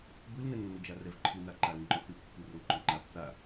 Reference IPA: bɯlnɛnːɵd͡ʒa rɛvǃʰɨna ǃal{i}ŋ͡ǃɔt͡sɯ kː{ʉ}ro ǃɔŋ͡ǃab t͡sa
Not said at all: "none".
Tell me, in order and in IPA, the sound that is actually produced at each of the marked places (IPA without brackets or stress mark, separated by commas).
ɨ, ɨ